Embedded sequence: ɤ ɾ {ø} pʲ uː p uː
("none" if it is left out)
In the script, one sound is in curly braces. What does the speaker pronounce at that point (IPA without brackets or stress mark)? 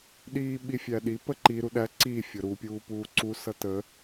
u